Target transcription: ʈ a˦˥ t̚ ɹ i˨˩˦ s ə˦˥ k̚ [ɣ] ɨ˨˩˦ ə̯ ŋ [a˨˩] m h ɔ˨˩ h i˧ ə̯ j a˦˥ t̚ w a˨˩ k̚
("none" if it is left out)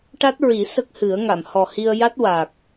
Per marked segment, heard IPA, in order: h, a˨˩˨

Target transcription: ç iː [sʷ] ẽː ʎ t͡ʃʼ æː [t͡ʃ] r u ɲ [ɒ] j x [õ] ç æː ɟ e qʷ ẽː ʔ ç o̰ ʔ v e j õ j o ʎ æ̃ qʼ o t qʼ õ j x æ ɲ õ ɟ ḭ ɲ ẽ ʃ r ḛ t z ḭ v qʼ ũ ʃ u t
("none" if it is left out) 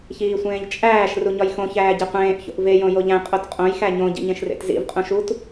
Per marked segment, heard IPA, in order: sʷ, ʃ, ɒ, õ

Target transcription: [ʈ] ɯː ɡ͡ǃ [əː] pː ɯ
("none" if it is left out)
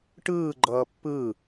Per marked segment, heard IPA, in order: ʈ, ʌː

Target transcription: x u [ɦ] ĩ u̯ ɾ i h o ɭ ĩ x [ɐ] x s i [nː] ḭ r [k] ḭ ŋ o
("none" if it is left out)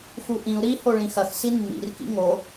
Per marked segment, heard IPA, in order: ʔ, ɐ, nː, k

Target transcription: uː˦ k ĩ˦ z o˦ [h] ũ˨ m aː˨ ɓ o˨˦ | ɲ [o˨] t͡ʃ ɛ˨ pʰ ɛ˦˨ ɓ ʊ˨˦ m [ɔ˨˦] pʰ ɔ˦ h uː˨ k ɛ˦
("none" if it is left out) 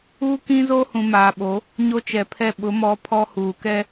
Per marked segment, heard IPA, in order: h, o˦, ɔ˨˦

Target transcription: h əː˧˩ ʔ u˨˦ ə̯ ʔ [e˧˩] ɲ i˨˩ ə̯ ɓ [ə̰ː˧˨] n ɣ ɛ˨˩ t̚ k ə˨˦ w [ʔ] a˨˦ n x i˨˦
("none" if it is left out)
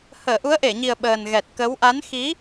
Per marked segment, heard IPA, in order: e˧˩, əː˨˩, ʔ

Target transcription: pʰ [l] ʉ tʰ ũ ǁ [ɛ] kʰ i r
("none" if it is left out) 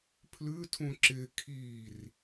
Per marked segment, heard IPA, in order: l, ɪ

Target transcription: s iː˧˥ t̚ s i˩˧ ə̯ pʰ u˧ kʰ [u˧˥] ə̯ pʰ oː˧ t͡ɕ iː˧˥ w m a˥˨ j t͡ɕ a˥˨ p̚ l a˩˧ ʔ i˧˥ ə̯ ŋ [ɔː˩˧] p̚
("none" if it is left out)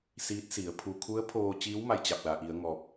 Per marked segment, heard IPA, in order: u˧˥, ɔː˧

